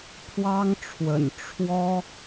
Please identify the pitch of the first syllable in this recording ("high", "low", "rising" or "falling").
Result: high